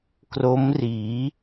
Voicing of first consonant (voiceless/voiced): voiceless